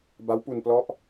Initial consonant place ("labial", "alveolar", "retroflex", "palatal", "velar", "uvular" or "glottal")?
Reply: labial